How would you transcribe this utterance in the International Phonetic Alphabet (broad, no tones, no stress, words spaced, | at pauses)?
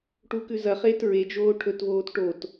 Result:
ʈukʉzɐχeːt ɹe d͡ʒoːʈʰɵtvoːt ʈot